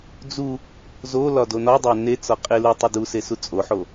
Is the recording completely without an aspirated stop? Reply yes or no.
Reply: yes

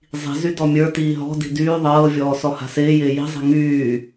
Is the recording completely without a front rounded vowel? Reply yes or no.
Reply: no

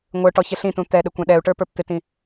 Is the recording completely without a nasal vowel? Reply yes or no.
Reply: no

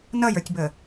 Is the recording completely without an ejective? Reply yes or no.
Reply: yes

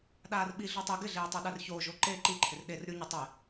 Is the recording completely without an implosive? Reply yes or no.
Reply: no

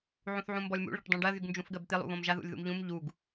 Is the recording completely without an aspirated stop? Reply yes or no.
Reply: yes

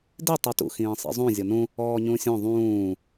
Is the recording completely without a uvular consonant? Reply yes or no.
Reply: yes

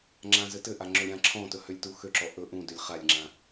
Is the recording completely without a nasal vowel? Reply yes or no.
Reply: no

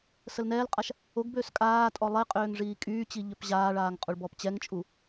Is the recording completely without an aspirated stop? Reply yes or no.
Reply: yes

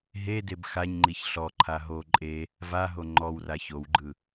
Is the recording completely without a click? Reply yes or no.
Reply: no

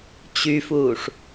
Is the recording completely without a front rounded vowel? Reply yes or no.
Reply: no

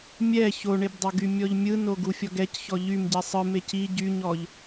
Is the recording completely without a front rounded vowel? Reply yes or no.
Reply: no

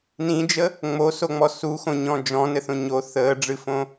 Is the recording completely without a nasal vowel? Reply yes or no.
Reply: no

